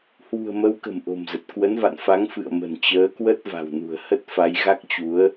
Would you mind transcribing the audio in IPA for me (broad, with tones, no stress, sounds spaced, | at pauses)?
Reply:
h w ṳ˨˩ ə̯ m ə˨˦ w k ə̤˨˩ m ʔ o̤˨˩ m z ə˨˩ t̚ k w ə˨˦ n v a̰˧˨ n f a˨˦ ŋ f ɨ̰˧˨ ə̯ m ə̤˨˩ n t͡ɕ əː˨˦ k w ə˦˥ t̚ v a̤˨˩ w n ṳ˨˩ ə̯ h ə˦˥ t̚ f a˨˦ j ɣ a˦˥ k̚ t͡ɕ u˨˦ ə̯